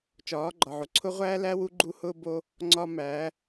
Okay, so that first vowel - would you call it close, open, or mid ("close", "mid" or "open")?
open